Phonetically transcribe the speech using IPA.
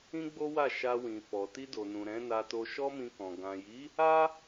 ĩ˦ ɡ͡b o˦ w a˦˨ ʃ a˧ w ĩ˨ f ɔ˨ t i˧ d o˨ n ũ˨ ɾ ɛ̃˨˦ n a˧ t o˧ ʃ ɔ˦ m ĩ˧ k ɔ̃˨ ɡ ã˨ j i˨˦ | a˦

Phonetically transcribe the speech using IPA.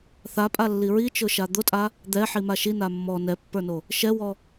θ a pʼ a lː i ɹ i t͡ʃ ʊ ʃ a d̪ ʊ tʼ a | d̪ ɛ ħ i m a ʃ i n a mː ɔ n ɛ pː ə˞ n o | ʃ ɛ w ɔ

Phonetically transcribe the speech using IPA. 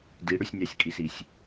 d i ɽ ʏ sʲ nʲ ɑ sʲ kʼ i s i sʲ

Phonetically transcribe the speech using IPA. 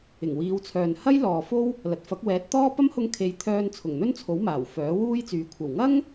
ɪ˨˩ ŋ w iː˨˧ w t͡sʰ œː˨ n h ɐ˥ j l ɔː˨ f o˥ w | l ɐ˨˥ t̚ f ɐ˨˥ k̚ w ɛː˨˥ t̚ t̪ ɔː˥ p ɐ˥ m h ʊ˧ ŋ kʰ e˨˧ j t̪ʰ œː˧ n t͡sʰ ʊ˨˩ ŋ n̪ ɵ˥ n t͡sʰ o˨˥ w m aː˨˩ w f œː˨˥ w uː˥ j t͡s yː˨˥ kʷʰ ɐ˨˩ w ŋ ɐ˥ ŋ

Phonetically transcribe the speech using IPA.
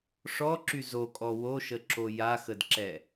ʂ ɔ ǁ y z o kʼ ɔ w o ʃ ə ǁ o j a x ə d ǁ ɛ

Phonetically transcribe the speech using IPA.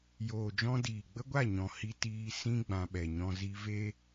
j oː˨ d͡ʒ ɔ̃˧ d iː˨ ɡ͡b ə˦ ɡʷ a˦˨ ɲ ɔ̃˨ h i˧ t iː˧ s ĩ˦ ɡ͡b ã˧ ɓ ɛ˨ ɲ ɔ̃˦ z i˧ v e˦

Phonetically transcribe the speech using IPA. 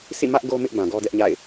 sʰ ḭ˦˨ m ä˦ ʔ ɡ o˦ m ɪ˦ ʔ b ã˨ ɡ ɔ˦ d ɛ˦ ʔ ɲ a̰˦˨ ɪ̯

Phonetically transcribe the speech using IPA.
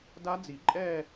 d a˦˥ d͡z i˨˩˦ ǃʼ ɛː˥˧

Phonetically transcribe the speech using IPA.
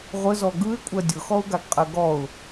ʁʷ ə z ɔ ɡ ɯ ɪ̯ kʷʼ ɜ dʲ ʊ x ɔ ʊ̯ ɡ a ɡ qʼ ɜ ɡ ɔ ʊ̯

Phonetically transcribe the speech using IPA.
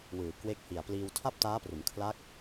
w ɯː˨˩ k w e˦˥ k̚ h i˨˩ a̯ p l iː˧ w tʰ a˥˩ p̚ t aː˦˥ p r u˩˦ n kʰ l a˦˥ k̚

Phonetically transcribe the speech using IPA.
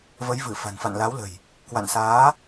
v ə˨˦ j v ɨ˧˩ f a̤˨˩ n f a̰˧˨ n l a˨˦ w l ə̤˨˩ j | k w a̰˧˨ n s aː˨˦

